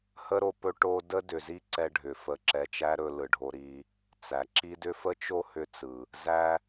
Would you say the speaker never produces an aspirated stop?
yes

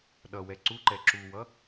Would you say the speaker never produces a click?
no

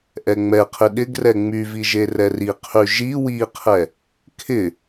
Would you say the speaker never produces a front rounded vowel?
no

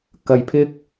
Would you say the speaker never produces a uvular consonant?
yes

